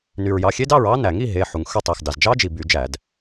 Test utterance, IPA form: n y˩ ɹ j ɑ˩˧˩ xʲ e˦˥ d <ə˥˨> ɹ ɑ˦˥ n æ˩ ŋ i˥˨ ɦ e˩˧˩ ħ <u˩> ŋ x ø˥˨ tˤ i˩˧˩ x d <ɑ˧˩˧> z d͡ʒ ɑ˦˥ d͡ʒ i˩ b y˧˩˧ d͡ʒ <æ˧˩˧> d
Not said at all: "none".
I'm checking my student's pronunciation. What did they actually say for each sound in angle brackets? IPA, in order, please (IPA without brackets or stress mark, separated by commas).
ɑ˥˨, u˩, ɑ˩, æ˧˩˧